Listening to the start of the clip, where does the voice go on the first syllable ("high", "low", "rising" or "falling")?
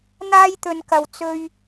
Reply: high